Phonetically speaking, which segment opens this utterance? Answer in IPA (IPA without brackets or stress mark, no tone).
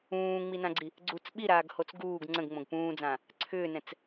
ũː